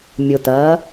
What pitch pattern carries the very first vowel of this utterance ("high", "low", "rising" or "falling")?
low